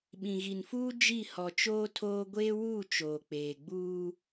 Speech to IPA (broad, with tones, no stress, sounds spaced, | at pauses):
ɓ ĩ˨ ɣ i˨ n f uː˦ d͡ʒ i˦˨ h ɔ˨ t͡ʃ oː˦ tʰ oː˦ ɡʷ eː˦ w uː˦˨ t͡ʃ oː˨ k͡p eː˨ ɡ͡b uː˦